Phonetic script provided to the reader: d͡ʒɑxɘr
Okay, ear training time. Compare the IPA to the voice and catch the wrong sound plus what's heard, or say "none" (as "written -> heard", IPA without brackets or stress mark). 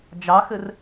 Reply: none